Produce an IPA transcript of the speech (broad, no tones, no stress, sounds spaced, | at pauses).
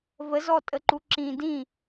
v ə z ɔ tʼ ə ǃ u ǁ ĩ d ĩ